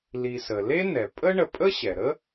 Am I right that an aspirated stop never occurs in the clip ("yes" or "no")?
yes